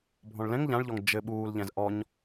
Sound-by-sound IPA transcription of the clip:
bʱ ɔ̃ ɭ l ɛ̃ ŋ ʎ ã ɭ ʎ ɔ ŋ d͡ʒ ɘ ɓ uː l ʎ ɛ̃ z ʔ ɔ ɲ

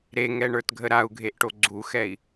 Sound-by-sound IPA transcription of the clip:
ɾ e ŋ ɛ ɳ ə˞ t ɡʱ ə ɾ a u̯ ɡʱ e ʔ ʈ o ɡ͡ǀ u x ɛ i̯

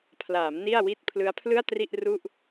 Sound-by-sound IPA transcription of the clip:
pʰ l aː˩˦ m n i˥˩ a̯ w i˥˩ t̚ pʰ l ɯ˦˥ a̯ pʰ l ɯ˥˩ a̯ t r i˥˩ ʔ r u˥˩ ʔ

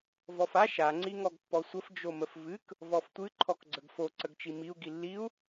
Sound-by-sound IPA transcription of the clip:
v ɔ f a ʃ a ŋ͡ǀ i ŋ ɔ ɡ pː ɔ sʷ ə f d͡ʒ o m ə f v ɨ k | v ɔ f tʷ ɨ ǃʰ ɔ k ɡ͡ǀ ə ɡ f o ǀ ə ɡ t͡ʃ i m i u̯ ɡ i lː i u̯

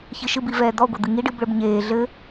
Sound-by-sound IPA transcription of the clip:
ç ɨ ʃ ɨ b i v ɛː d̪ ɔ ɡʷ ɐ d̪ ɨ ŋ i ɖ ɨ b ɭ ɘ b ɲ eː ɮ ɘ

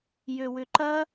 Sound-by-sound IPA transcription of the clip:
j ø w ʏ ǃ ɐ

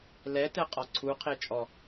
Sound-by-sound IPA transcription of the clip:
l ɛ t ɛ qʼ ɒ ǀʰ u qʰ e t͡ʃʼ ɔ

